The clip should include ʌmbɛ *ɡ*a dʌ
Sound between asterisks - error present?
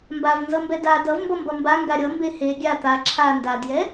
yes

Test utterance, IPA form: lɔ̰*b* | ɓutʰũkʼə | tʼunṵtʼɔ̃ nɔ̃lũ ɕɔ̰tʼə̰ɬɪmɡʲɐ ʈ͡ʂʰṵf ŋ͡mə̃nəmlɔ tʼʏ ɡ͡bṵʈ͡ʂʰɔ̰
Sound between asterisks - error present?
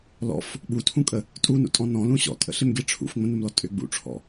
yes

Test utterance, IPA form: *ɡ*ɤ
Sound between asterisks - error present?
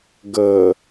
no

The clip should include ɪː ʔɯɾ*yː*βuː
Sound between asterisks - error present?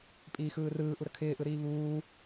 yes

